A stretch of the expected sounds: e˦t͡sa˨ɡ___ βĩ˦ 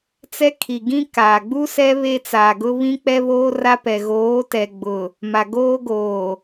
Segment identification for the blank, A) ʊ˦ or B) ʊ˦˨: A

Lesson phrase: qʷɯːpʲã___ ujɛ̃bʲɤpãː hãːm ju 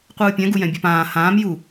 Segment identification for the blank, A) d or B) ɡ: B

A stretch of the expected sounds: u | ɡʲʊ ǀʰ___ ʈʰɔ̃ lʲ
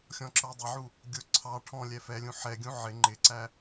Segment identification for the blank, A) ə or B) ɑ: B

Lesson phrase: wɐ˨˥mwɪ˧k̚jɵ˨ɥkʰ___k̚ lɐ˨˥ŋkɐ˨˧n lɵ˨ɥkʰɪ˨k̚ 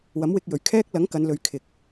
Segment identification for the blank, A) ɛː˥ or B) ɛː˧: A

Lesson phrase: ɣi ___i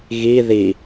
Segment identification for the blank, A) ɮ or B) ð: B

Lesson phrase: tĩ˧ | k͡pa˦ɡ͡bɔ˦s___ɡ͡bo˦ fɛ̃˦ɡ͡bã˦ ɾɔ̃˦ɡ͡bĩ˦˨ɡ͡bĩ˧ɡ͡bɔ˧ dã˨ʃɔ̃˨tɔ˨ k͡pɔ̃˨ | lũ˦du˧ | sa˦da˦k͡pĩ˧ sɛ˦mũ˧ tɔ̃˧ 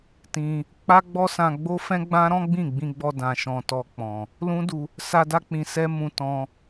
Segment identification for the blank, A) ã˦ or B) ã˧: B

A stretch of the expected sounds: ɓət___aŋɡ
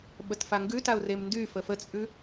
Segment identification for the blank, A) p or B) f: B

